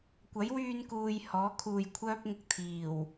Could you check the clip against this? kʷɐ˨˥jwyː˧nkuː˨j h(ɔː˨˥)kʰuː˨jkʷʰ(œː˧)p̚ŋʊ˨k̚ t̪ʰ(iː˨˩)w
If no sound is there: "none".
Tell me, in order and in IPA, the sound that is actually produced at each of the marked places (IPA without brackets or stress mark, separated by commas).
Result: ɔː˨˥, œː˥, iː˨˩